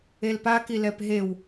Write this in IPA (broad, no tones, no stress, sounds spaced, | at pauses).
e l p a k i l ɛ p ɦ e w